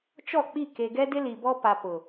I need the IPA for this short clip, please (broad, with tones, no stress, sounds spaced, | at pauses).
t͡ʃ ɔ˦˨ k͡p i˦˨ k e˨ ɡ ɛ˦ d ɪ˦ l i˨ b ɔ˦ p a˨ p ʊ˨